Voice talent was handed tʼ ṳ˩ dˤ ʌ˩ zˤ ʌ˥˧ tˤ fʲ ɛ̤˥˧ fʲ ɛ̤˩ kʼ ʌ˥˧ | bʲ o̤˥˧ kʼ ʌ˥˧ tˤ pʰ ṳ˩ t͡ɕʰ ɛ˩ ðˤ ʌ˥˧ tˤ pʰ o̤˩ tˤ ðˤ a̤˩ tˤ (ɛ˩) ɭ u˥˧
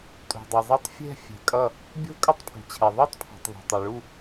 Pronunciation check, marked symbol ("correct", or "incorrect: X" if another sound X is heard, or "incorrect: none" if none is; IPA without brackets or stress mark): correct